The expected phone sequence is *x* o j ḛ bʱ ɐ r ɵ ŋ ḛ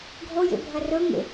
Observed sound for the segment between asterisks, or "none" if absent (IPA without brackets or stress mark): ɡʱ